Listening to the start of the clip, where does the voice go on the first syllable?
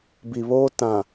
low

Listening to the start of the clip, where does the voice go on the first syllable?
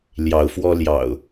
rising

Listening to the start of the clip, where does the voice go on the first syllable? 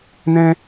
high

